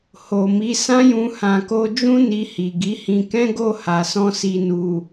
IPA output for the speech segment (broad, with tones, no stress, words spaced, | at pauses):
ho˨mi˨˦sã˦jũ˧ hã˨ko˧d͡ʒũ˦ ni˧hi˨ ɡi˨˦hĩ˧ kɛ̃˦ɡo˦˨ ha˨sɔ̃˧ si˨nu˨